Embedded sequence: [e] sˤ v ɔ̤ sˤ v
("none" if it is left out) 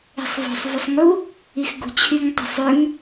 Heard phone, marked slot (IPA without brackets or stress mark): e̤